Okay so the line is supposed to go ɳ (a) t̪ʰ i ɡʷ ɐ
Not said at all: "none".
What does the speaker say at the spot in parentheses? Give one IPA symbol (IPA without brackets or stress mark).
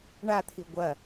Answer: a